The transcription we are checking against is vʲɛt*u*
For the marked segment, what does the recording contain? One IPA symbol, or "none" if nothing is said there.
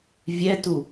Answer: u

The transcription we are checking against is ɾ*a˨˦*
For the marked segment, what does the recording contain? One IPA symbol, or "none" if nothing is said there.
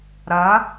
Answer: a˨˦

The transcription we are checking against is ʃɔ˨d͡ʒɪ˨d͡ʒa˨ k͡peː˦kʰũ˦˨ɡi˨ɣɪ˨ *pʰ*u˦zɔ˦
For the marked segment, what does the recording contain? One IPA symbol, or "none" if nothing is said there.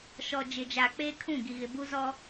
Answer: b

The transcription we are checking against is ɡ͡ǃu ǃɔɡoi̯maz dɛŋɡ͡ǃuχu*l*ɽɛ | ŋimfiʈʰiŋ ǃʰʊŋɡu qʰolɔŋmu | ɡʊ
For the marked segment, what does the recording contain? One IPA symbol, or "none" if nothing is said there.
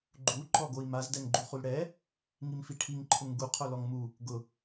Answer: l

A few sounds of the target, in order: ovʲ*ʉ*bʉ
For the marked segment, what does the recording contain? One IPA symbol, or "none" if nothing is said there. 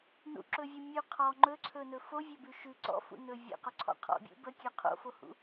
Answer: ø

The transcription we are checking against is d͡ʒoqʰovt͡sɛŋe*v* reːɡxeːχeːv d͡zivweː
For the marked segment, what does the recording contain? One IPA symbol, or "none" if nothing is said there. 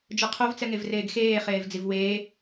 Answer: v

